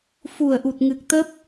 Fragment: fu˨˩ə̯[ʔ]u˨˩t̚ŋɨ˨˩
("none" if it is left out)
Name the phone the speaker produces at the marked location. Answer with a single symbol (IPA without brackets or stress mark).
ʔ